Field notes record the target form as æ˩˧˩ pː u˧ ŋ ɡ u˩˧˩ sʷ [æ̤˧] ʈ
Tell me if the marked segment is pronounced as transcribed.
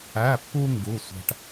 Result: yes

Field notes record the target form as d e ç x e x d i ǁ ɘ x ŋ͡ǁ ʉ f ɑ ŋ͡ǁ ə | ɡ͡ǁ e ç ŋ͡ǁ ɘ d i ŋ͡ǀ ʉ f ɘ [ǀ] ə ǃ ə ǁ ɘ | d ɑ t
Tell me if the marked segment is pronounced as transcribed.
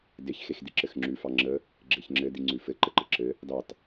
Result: no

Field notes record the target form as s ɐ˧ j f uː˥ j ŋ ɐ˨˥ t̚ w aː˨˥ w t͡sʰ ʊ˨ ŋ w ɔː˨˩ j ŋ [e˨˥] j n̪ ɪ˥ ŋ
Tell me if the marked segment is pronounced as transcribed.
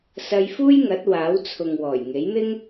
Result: yes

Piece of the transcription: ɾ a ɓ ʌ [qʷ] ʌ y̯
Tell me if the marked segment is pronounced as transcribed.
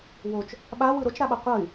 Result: yes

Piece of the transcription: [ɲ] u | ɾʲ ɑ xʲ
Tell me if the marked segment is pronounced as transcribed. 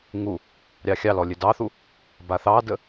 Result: no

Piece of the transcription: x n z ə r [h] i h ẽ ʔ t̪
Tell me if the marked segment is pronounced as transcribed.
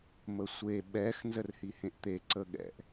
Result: yes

